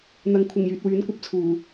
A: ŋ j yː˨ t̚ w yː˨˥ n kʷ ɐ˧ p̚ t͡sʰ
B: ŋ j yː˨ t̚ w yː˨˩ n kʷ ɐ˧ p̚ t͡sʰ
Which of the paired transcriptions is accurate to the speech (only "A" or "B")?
A